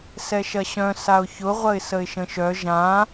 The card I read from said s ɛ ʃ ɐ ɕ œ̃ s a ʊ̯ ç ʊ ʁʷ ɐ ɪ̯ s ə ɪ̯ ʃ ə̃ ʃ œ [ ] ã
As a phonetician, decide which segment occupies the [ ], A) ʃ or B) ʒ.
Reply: B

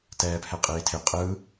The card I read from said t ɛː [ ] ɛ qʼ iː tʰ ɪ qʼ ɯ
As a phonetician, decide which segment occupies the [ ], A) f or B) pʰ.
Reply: B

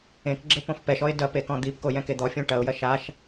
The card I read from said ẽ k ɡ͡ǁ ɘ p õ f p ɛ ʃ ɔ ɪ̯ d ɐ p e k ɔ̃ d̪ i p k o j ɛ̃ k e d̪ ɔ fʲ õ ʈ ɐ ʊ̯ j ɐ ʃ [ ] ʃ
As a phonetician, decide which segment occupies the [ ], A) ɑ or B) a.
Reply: B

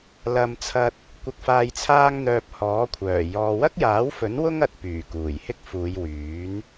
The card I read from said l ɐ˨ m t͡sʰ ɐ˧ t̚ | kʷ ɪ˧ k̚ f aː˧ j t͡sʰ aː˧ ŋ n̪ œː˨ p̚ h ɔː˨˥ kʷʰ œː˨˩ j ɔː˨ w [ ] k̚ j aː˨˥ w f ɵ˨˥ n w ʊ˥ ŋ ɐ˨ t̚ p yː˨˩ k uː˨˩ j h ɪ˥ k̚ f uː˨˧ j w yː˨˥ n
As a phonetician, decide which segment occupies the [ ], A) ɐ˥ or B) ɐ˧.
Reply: A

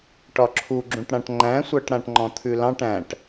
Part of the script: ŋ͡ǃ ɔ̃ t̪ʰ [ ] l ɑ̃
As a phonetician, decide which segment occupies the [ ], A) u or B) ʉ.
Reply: B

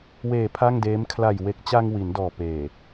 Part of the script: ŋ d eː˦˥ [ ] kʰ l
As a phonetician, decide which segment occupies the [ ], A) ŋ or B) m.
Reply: B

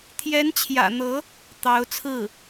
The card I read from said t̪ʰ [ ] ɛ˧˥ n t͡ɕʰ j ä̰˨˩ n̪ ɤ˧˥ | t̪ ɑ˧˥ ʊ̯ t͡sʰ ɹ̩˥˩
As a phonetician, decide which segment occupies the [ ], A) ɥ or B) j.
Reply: B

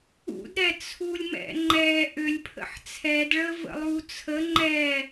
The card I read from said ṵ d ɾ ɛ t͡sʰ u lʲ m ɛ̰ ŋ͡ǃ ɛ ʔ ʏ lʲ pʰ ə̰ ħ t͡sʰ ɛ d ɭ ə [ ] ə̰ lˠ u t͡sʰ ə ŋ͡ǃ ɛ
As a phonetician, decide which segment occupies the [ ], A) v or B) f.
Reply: A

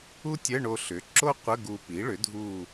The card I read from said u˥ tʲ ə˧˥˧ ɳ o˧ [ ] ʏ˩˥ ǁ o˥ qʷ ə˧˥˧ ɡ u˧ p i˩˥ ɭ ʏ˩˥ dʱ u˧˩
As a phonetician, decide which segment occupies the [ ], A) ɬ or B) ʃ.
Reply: A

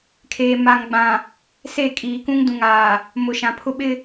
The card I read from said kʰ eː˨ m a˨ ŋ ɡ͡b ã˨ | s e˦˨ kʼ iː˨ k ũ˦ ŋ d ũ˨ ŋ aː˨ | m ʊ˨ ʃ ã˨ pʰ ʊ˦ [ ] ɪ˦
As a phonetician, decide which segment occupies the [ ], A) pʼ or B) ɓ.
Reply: B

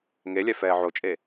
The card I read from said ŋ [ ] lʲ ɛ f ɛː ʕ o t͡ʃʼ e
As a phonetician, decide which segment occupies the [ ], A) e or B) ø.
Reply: A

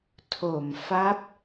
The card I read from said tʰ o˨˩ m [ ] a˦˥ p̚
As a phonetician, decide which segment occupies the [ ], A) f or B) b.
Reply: A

